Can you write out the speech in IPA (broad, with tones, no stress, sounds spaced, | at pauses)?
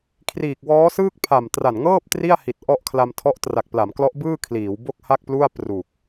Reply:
kʰ r iː˨˩ k̚ w ɔː˦˥ s ɯː˥˩ k̚ pʰ a˨˩ m t r a˨˩ n ŋ ɤː˥˩ p̚ t r i˥˩ a̯ h i˨˩ t̚ ʔ ɔ˥˩ ʔ kʰ l a˧ m tʰ ɔ˦˥ ʔ t r a˨˩ k̚ p l a˩˦ m k l ɔ˦˥ ʔ b ɯː˥˩ kʰ l iː˩˦ w b o˥˩ k̚ h a˥˩ k̚ p l u˥˩ a̯ p r u˨˩ k̚